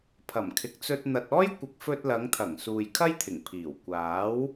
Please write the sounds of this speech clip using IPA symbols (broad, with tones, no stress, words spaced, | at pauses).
pʰɐ˨˩mkʰɪ˨k̚t͡sɵ˧t̚ n̪ɐ˨t̚ɔː˥jkʷɪ˨k̚ fɵ˧t̚lɐ˨˧ŋt̪ʰɐ˨˩ŋ suː˨jkʰɐ˥jt̪ʰɪ˨˩ŋpʰiː˨˩w kʷaː˨˥w